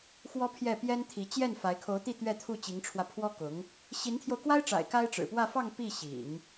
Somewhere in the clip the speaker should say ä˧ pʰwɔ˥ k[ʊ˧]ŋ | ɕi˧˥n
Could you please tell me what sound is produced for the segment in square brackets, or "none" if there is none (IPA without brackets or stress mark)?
ʊ˧˥